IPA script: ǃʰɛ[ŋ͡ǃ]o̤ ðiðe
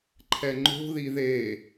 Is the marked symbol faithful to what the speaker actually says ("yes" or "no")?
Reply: yes